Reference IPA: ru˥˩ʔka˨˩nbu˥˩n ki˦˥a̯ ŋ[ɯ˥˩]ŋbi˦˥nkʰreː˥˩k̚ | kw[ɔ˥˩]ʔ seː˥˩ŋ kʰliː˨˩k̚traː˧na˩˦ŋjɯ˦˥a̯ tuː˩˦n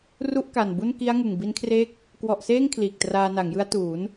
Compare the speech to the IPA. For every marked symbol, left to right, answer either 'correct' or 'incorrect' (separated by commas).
incorrect, incorrect